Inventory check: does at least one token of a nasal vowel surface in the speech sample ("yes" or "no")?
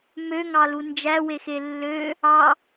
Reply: no